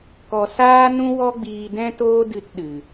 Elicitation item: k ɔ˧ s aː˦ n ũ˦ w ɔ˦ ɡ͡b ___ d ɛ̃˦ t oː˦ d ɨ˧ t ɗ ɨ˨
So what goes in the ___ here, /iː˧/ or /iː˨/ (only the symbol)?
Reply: iː˧